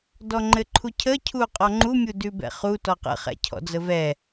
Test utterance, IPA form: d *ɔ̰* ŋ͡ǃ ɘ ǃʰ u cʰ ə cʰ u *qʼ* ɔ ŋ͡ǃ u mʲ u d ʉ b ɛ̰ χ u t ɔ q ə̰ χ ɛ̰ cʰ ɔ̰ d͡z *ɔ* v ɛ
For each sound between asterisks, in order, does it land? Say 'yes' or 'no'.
no, yes, no

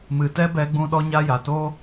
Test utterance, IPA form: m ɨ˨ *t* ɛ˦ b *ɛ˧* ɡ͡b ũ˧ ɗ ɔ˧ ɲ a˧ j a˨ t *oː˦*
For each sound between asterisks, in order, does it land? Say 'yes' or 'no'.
yes, yes, yes

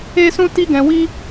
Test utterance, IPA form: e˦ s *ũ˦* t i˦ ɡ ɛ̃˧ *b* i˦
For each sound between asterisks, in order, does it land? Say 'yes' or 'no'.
yes, no

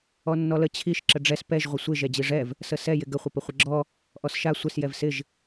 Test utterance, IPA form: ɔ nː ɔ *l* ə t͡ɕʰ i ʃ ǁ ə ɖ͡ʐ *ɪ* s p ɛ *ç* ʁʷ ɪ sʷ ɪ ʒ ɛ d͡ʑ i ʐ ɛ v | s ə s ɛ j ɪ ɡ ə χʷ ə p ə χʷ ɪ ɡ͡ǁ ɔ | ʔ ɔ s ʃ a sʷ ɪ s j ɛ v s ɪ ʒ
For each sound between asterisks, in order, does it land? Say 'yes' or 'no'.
yes, no, no

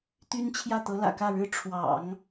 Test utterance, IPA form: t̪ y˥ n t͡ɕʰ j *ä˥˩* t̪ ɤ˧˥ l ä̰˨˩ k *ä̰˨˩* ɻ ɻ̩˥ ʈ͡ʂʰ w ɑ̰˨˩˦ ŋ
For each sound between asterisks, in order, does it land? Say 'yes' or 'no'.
yes, no

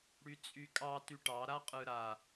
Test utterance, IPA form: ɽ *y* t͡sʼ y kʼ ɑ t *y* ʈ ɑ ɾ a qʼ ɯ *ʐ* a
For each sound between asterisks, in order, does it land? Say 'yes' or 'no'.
yes, yes, no

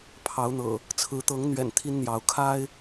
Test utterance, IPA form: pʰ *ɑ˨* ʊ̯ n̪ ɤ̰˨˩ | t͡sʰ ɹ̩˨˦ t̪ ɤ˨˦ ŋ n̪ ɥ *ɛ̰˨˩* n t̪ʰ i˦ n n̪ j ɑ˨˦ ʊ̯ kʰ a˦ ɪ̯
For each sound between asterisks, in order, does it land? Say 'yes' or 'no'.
no, yes

